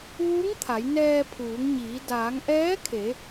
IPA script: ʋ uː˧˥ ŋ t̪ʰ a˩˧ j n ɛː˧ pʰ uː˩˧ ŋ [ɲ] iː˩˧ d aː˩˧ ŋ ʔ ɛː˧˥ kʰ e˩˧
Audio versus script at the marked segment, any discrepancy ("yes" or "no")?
no